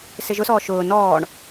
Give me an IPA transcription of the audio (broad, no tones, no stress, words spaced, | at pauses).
sɪʒʊsɔː ʃʊː nɔːɳ